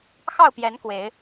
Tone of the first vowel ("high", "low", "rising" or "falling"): falling